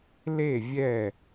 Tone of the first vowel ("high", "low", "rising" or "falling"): falling